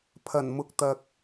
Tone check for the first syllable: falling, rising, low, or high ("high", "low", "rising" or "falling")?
low